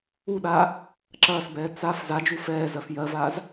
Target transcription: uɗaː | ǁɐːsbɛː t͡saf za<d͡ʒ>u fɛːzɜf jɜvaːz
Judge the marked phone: correct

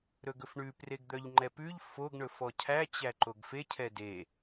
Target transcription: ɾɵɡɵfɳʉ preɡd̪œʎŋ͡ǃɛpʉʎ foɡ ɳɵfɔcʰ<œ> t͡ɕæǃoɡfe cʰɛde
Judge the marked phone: incorrect: æ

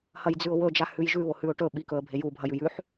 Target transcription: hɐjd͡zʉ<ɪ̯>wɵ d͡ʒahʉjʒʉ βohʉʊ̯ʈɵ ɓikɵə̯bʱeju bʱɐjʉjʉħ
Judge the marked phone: incorrect: ʊ̯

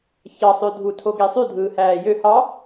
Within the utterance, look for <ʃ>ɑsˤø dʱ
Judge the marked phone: incorrect: ç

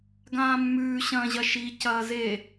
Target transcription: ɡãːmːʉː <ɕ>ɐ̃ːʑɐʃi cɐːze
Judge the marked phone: correct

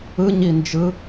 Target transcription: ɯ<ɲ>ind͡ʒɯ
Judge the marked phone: correct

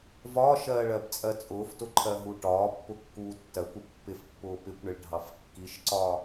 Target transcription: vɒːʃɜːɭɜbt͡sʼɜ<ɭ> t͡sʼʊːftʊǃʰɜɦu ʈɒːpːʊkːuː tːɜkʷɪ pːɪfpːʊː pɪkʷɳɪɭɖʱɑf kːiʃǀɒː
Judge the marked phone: incorrect: none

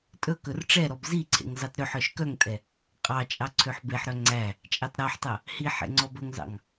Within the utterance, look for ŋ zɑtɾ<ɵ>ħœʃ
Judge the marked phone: incorrect: ø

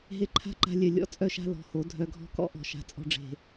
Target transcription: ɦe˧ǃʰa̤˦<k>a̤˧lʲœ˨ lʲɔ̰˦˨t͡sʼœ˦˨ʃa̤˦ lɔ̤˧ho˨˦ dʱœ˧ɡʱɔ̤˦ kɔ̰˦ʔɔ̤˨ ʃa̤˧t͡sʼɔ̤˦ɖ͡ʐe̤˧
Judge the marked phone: incorrect: ǃ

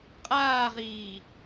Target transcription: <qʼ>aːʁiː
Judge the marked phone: correct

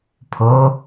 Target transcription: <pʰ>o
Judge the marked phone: correct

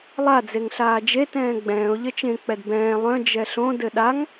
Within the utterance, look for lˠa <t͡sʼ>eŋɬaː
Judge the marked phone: incorrect: d͡z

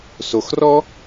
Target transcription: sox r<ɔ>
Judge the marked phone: correct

